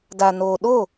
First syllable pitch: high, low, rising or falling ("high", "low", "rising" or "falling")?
low